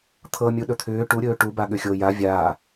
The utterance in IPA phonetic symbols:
t̪ʰɤmʲu ɗɵt̪ʰʏː ʈuɾʲɵː ʈu baɠʏxʲo ja vʲaː

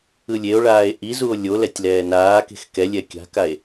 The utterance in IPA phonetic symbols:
ɯlʲeo̯ɭaːe̯ ʔizuo̯ lʲolɛtʲ lɛːnaːke̤x kɛlʲɛ kʲa̤kae̯

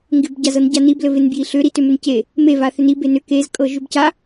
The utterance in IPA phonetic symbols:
ŋɡɪbɟazɤn ɟaniblɘvɪn bjiɬʏɾi tʏmʏnce | meva θʏnib enʏ kezkʼɤ ʒʏbca

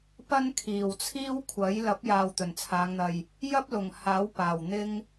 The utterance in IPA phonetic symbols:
pɐ˥n kʰiː˨˩wt͡sʰiː˥wkʷʰɐ˨˥j lɐ˨˥p̚jaː˨w t̪ɵ˨˩nt͡sʰaː˨˧ŋ n̪ɐ˧j | jɐ˥p̚lʊ˨˩ŋ haː˨˥w paː˨˩wn̪ɪ˥ŋ

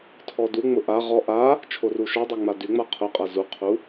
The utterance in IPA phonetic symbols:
tʰɔduŋ͡mʊ ʔa ʁɔ ʔa | t͡ʃʰoruʃɔdˤo ŋ͡madyŋ͡ma qʰʊ qʼazuqʰu

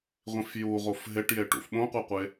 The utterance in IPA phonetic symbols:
ʁʷĩfjuʁof ɦeʈje ʈṵfɓõqʷiqʷe

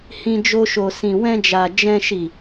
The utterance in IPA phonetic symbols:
hĩ˧d͡ʒo˧ʃo˨ sĩ˨wɛ̃˧d͡ʒa˨ d͡ʒɛ̃˧ ʃi˨

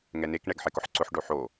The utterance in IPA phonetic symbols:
ŋɛnek ɳɛɡħekʊħǀʊħ ɖoħo

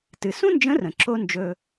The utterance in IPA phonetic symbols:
tɨ˩ sũ˥nd͡ʒə̃˧˥ rə̃˩ǁo˥nd͡ʒɵ˧

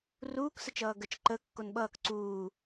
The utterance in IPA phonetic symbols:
ruːksət͡ʃʌː ɡət͡ʃ ǃə kːonɓʌːk ǀuː

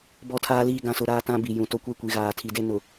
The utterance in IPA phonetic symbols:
bɔ˦˨tʰaː˦ liː˦ɡã˦˨sʊ˦ɾaː˦ tã˦ bi˨jũ˨ to˦kʷe˦ kʷi˨ɣaː˨tʰi˨ de˦ nʊ˨

